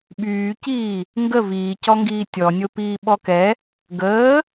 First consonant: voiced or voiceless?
voiced